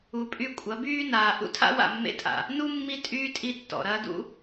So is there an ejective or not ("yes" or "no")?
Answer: yes